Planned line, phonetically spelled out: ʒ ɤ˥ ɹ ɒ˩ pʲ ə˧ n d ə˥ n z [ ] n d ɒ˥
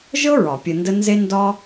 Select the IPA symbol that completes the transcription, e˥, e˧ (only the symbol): e˥